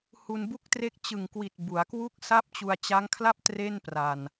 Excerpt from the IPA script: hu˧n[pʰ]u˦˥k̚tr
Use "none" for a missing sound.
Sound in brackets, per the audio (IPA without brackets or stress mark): b